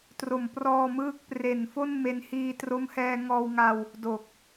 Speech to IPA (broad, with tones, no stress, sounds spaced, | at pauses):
t r o˨˩ m p r ɔː˧ m ɯː˦˥ k̚ p r e˨˩ n f o˥˩ n m e˦˥ n h iː˧ t r o˦˥ m h ɛː˧ ŋ ɔː˧ w ŋ a˧ w | d o˨˩ k̚